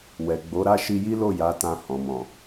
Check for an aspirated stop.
absent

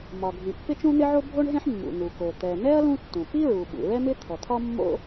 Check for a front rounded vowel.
absent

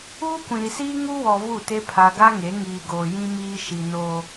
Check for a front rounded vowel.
absent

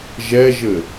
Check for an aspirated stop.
absent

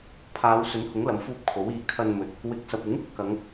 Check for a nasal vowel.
absent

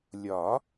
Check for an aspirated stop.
absent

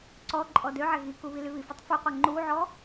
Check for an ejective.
present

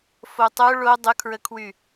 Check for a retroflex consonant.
present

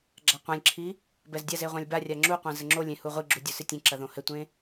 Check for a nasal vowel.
present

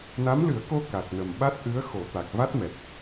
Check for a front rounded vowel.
absent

